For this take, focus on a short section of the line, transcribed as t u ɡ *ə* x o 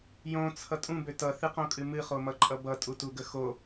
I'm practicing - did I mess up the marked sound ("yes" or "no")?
no